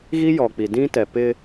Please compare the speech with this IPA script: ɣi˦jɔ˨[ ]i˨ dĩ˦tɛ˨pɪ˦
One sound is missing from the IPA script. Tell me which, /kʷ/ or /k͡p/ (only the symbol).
k͡p